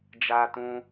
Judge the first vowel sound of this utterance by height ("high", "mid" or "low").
low